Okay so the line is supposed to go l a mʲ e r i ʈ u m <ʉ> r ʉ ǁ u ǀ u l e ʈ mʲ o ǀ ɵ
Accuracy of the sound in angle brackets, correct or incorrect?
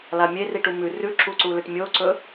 correct